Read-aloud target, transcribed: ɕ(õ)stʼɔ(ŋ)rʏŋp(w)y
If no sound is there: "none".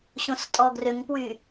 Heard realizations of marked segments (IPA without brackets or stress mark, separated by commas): õ, ɡ, w